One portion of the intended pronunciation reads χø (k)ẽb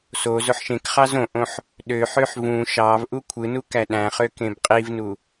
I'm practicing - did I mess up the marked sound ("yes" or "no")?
no